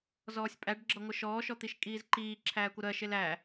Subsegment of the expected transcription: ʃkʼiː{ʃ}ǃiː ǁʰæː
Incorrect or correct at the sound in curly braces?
incorrect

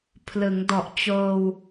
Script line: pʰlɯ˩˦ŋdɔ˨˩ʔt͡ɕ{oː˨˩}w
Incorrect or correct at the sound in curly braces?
incorrect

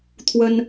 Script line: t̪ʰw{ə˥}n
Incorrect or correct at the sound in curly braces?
correct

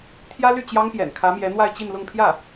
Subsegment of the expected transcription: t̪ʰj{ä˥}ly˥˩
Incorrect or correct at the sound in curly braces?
correct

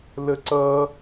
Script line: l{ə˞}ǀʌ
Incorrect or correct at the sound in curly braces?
incorrect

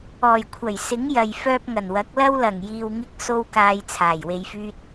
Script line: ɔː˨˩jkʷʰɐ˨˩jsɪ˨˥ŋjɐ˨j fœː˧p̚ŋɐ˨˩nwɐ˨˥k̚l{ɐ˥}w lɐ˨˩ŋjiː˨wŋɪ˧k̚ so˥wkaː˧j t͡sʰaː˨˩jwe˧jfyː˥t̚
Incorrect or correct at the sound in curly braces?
correct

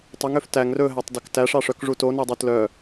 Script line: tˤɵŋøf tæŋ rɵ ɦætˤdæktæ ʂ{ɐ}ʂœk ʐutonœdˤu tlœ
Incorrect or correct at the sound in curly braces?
incorrect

